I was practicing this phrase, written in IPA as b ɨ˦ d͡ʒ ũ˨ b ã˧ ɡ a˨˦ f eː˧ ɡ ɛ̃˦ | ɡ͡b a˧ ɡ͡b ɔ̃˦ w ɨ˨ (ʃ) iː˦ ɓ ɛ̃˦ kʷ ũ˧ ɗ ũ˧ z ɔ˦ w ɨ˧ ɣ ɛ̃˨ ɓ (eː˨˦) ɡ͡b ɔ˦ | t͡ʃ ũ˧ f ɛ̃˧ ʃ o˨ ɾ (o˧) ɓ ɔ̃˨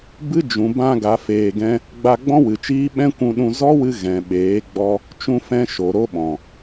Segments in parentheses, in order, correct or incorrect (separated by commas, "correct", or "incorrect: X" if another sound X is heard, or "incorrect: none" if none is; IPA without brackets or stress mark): incorrect: t͡ʃ, correct, incorrect: o˦